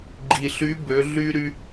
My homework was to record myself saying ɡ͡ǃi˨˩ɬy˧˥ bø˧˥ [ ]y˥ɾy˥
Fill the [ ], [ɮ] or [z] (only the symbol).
ɮ